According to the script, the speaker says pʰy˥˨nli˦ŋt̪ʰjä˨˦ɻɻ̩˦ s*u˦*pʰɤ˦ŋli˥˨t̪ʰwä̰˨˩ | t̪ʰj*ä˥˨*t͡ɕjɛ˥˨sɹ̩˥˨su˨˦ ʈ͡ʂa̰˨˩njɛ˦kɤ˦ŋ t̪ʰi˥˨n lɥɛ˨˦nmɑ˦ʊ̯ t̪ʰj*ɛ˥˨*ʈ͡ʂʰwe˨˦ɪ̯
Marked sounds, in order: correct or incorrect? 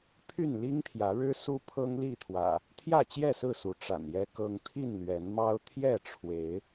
correct, correct, correct

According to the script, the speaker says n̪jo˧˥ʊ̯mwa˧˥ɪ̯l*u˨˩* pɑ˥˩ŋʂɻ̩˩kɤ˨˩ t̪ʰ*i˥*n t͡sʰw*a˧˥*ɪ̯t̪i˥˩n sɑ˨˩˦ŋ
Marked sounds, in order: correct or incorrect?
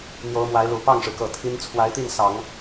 correct, correct, correct

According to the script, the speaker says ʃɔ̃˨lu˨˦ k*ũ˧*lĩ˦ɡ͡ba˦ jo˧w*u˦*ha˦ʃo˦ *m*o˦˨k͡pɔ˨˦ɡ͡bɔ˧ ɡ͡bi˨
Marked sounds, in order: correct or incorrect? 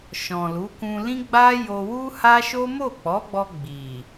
correct, correct, correct

